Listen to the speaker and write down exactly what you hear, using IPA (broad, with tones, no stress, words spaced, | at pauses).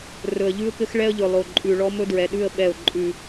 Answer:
rɵ˨ə̯ ʎʉ˦ʊ̯kɘ˦xɭɛ˦ə̯ʎɵ˨ lˠo˨ ǃʼʉ˨ ɭɔ˦mɵ˦dɹɛ˨ɗʉ˦˨ə̯ ɓɛ˦˨ʊ̯ǃʼʉ˦